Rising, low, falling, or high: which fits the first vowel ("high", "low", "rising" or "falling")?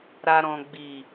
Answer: low